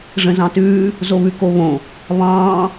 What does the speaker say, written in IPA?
ʐ ə̃ z ɑ̃ t ʉː | z o β ʉ k o β õ | β ɑ̃ː

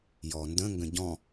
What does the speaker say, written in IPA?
j ɔ n d ə̃ ŋ ɡ ə̃ ɟ ɔ̃

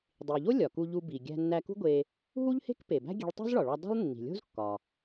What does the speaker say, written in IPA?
dˤ i˩ ʎ o˥ lʲ ɒ˩ k u˧ ʎ u˧ b i˩ ɡʲ æ̤˧ nː æ˧ k ṳ˥ ɡʷ e˧ | ɦ u˥ ʎ h e̤˥ k p e˩ b æ̤˥ ɡʲ e̤˧ ɭ tˤ o̤˥ z ɭ ɒ˩ ɭ ɒ˧ dˤ ṳ˥ lˠ nː i̤˩ lʲ o̤˥ z kː ɒ˩

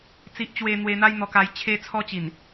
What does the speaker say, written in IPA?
t͡s i˦ ʔ t͡ɕ w e˦ n̪ w e˧ n̪ a˦ j n̪ ɔ˧ k a˧ j t͡ɕʰ e˦ t͡sʰ ɔ˦ t͡ɕ i˨˩ n

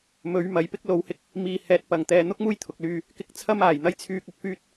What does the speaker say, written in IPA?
m ɵ˨˧ ɥ m ɐ˨˥ j p ɪ˥ k̚ l o˨˥ w h ɪ˧ k̚ | m iː˧ h ɛː˧ t̚ p ɐ˨˩ ŋ t̪ ɛː˨ n̪ ʊ˥ k̚ m uː˥ j t̪ʰ ʊ˨ k̚ l yː˧ | k ɪ˧ k̚ t͡sʰ ɐ˥ m aː˨˩ j n̪ ɐ˥ j t͡sʰ yː˧ k̚ ʊ˨˥ k̚ f yː˥ t̚

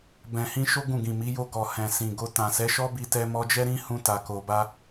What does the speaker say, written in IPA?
b ɛ̃˨ h ĩ˧ ʃ o˦ ɡ ũ˦˨ ɡ ĩ˨ m i˨˦ j o˧ ɡ ɔ˨ h ɛ̃˨ s ĩ˨ ɡ o˧ t ã˨ s ɛ˨˦ ʃ ɔ˦ b i˧ t ɛ˧ m ɔ˧ d͡ʒ ɛ˦ ɾ ĩ˦ h ũ˧ t a˨ k o˨ b a˧

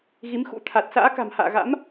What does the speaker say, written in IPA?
ɣ i˨˦ m x ṵ˧˥ t̪ʰ a˨˩ t̚ s a̰ː˧˥ k a̤˨˩ m h a̰ː˧˨ ɣ a̰˧˥ m

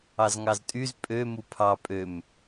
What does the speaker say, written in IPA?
ɑ z ŋ ɑ z tʼ y z pʼ ø m u pʰ ɑ pʼ ø m

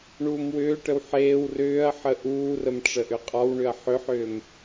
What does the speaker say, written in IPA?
ɳ uː m w ʏː ʈ ə w ħ eː w r ʏː ɐ̯ ħ ə ʔ uː r ə m ʈ͡ʂ ə ʔ ʏ qʼ ɒ w ɳ ʏ ɐ̯ ħ ʏ ħ ʏː m

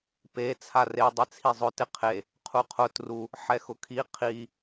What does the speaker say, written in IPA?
p e t͡sʰ a r e dˤ ɪ t͡sʰ i zˤ ʊ t ɪ qʰ e | qʰ u qʰ ʊ t r u | ħ ɛ x ʊ kʰ i qʰ i

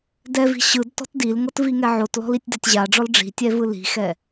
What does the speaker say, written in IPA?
d ɛ v i̤ ɕ ɯ d t ɔ̤ t d i l ŋ ɤ t v i ŋ ɛ ʕ o t l ɔ̤ l i tʲ d a tʲ ʑ a ɖ͡ʐ ɔ l ɖ͡ʐ i̤ tʲ ɛ v ɯ l i̤ x ɛ

